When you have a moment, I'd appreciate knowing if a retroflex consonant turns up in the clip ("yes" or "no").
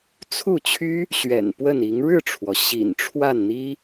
yes